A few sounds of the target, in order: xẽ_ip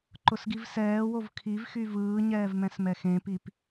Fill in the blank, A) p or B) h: A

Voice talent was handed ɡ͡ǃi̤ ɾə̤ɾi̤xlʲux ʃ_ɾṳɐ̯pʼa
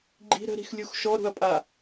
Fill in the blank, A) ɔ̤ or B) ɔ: B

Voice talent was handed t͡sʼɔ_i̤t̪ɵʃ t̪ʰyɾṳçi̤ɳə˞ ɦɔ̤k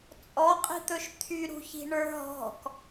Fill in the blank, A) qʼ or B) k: A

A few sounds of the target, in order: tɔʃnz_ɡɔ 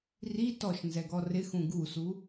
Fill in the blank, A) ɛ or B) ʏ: A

